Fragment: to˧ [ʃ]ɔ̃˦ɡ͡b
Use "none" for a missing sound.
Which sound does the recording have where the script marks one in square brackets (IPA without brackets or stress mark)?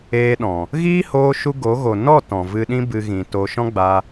ʃ